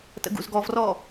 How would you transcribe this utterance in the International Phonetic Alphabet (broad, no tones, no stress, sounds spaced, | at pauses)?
t ə̰ ɡ ṵ z ɡ ɔ v r ɔ